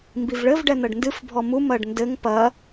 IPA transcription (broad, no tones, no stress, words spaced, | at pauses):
mbivɭɘv ɖɛn̪ɐɖndɨf bʱɔmu mɐɖndɘŋ pɐ